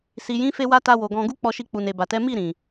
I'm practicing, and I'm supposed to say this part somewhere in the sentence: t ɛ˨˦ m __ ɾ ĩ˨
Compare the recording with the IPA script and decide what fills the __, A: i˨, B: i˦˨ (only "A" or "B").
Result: B